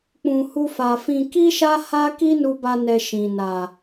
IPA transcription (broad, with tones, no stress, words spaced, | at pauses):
k͡pũ˨hu˧fa˨fĩ˧ ki˦ʃa˦ha˦ ki˦nu˧ba˧nɛ˨ ʃĩ˨na˨